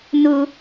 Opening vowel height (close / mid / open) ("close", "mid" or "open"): close